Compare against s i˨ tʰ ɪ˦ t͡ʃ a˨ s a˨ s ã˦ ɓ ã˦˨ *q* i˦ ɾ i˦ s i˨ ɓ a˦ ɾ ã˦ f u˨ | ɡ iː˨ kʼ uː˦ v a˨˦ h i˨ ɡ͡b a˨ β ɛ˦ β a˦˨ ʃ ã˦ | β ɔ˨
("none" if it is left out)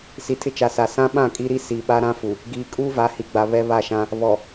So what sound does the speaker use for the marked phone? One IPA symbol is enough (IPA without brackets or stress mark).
kʼ